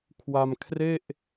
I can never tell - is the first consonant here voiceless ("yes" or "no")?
yes